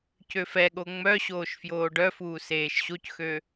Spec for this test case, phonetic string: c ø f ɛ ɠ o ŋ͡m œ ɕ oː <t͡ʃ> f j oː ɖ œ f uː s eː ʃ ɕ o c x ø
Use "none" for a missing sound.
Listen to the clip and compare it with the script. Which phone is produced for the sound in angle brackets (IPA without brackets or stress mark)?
ʃ